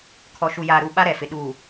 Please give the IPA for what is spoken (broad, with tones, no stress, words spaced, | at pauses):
kʰɔ˨ʃu˨ jaː˨ɾu˨ ɓa˦ɾɛ˨fɪ˨ ɗuː˨